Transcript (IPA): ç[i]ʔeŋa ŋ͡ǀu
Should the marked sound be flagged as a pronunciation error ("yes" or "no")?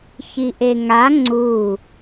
no